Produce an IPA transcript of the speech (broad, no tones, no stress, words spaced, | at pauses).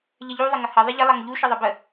ʎəʎu ðˤɪŋəhʌ ðˤɪʎɪ lˠɑŋʎu ʃʌðˤʌbə